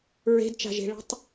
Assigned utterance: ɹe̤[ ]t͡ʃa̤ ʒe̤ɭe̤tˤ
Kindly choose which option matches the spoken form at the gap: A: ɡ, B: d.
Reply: B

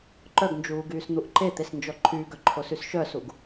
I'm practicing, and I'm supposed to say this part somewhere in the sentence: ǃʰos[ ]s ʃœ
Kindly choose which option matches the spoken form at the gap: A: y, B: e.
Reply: A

